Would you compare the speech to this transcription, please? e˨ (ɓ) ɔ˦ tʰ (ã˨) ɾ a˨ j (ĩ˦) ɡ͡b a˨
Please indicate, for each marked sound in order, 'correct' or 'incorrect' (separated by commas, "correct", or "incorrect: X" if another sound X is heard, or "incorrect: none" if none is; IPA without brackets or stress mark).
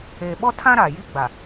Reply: correct, incorrect: ã˦, incorrect: i˦